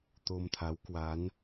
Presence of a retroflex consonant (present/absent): absent